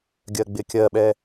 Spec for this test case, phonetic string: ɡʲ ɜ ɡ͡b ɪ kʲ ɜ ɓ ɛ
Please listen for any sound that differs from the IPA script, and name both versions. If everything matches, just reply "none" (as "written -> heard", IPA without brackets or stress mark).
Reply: none